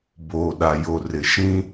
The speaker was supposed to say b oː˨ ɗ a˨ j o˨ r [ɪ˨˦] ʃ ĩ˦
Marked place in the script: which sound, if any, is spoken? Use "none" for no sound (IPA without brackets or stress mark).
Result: ɪ˨